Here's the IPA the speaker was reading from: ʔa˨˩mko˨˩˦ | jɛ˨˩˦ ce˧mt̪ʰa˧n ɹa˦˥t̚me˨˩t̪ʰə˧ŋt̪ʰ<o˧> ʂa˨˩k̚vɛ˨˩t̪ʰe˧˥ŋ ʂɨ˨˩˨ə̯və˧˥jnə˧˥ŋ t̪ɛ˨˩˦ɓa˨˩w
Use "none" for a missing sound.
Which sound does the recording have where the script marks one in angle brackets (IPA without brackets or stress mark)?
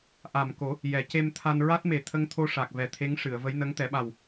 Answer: o˧